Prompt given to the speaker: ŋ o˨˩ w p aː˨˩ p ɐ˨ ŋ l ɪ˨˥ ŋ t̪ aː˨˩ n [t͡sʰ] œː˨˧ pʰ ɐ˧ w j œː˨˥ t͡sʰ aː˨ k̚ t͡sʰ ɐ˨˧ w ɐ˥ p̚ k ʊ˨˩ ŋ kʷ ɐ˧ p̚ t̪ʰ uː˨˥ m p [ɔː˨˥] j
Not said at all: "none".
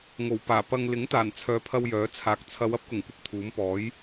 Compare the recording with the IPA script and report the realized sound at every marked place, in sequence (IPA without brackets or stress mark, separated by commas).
t͡sʰ, ɔː˨˥